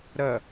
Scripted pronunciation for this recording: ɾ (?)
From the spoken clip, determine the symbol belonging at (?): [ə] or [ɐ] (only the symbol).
ɐ